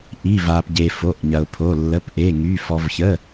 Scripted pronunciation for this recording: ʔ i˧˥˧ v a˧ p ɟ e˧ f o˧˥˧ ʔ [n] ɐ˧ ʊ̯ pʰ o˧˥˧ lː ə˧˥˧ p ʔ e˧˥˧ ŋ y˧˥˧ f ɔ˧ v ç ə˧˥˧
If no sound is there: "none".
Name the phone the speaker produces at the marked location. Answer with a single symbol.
ɲ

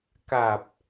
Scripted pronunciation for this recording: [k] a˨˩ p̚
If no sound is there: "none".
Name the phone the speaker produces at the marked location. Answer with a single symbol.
k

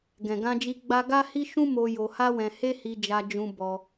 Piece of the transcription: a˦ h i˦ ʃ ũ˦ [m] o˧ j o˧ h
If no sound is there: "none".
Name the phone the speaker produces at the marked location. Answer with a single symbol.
m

